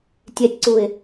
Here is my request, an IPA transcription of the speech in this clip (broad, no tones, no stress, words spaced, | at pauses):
tʲɛtʲǀuɪ̯